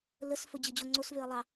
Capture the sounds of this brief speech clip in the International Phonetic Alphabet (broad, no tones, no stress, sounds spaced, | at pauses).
l ə s f ɵ d͡ʑ ɨ d͡ʑ o ŋ͡ǀ o s v ø ɐ̯ lˠ ɑ